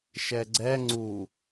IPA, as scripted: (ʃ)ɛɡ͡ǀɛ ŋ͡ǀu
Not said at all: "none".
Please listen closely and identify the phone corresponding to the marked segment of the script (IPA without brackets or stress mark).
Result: ʃ